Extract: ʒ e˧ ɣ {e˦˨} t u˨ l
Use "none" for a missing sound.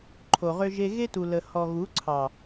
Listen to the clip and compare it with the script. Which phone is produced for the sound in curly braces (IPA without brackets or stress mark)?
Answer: e˦